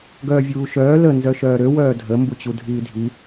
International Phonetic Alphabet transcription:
ɡ œː vʲ uː ʃ œː l ə n z œ ʃ œː ɾ ø w œː dʱ ə m b u t͡ɕ u dʱ iː dʱ i

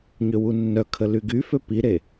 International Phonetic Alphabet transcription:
ɲ ø w u nː œ kʰ ə l y ɡ y f ø p i ɾ e

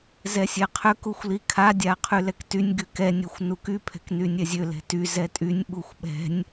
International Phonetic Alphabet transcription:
z ɛ sʲ ɛ qʰ ø k u xʷ l i kʰ a dʲ a qʰ y l ɛ k t y nʲ ɡ y k ɛ nʲ ɛ xʷ n u k y pʰ ɛ̤ k n y nʲ ɛ zʲ ø l ɛ̤ t y z ɛ tʼ y nʲ ɓ u xʷ ɓ ɛ̤ nʲ

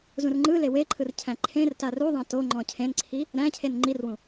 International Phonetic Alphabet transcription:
z ũ r ŋ͡ǃ ɯ l e w e ǃʰ ɯ r cʰ æ̃ ǃʰ ẽ r t a r u ðˤ ã t o ŋ͡ǃ ɔ̃ cʰ ẽ n ǀʰ i | ɾ æ̃ cʰ e n ŋ͡ǃ i r w ũ

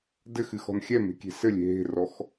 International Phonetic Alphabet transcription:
d ɘ x ɨ x ɔ̤ n xʲ ɛ m e̤ kʲ e̤ s ɘ lʲ e̤ ɦ e̤ r ɔ x

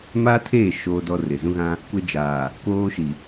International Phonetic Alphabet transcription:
m aː˦ tʰ eː˦˨ ʃ oː˦ d ɔ˦ r ɪ˨ z ũ˦ ɣ ã˦ | kʷ ɛ˦ d͡ʒ aː˨ | k oː˦ ʃ i˨

